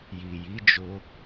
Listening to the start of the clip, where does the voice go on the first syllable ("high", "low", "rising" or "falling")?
low